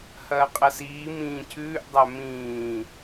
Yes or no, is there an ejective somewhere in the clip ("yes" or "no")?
yes